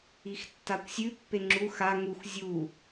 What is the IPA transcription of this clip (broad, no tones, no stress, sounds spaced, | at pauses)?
i x tː a kʷ sʲ ʉ pː e ŋ͡ǁ u x a ŋ u x zʲ u